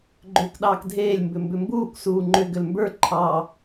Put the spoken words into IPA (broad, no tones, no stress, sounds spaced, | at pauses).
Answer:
ɡ͡ǃ ʏː k ɗ ɑː k dʱ eː lʲ m b ʏ m b ʏ m b uː kʷ s uː ŋ͡ǃ ʏ ɡ ʏ l m b ə˞ ǃʰ ɑ